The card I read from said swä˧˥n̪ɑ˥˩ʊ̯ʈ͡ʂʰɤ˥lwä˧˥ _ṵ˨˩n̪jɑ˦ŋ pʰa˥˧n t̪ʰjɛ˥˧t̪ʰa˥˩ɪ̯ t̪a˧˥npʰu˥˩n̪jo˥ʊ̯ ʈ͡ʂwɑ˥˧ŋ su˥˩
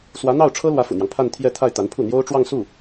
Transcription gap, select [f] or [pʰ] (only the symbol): f